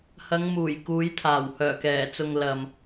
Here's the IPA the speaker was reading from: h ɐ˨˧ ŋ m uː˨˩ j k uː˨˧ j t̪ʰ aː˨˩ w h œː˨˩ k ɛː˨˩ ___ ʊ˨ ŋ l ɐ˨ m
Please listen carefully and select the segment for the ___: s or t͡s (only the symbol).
t͡s